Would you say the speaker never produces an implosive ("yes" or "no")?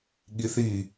no